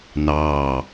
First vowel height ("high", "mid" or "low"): low